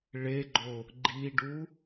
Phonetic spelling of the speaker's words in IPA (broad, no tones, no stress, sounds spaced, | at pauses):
ɭ e ɡ͡ǃ o | ɡ͡ǃ i ɖ u